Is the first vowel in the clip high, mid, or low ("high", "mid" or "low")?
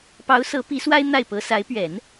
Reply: low